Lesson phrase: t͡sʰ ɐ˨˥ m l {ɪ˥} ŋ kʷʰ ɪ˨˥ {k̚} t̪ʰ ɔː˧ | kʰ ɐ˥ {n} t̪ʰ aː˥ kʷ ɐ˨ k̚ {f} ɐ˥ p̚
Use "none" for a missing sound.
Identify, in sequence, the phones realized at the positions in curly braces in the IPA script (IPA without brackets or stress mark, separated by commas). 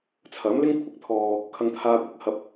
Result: ɪ˥, k̚, ŋ, h